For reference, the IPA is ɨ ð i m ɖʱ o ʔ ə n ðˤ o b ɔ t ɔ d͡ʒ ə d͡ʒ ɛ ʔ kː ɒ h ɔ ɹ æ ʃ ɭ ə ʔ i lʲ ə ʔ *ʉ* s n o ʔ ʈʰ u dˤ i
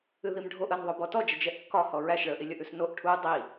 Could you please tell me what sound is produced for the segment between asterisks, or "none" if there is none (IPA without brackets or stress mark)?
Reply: ʉ